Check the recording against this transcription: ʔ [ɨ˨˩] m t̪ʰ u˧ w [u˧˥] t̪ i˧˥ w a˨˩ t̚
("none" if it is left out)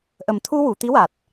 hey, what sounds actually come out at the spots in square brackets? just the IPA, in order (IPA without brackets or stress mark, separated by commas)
ə˨˩, u˨˩˨